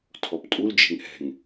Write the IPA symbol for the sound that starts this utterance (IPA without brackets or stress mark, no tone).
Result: tʰ